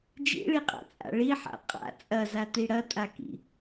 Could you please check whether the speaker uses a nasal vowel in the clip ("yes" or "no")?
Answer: no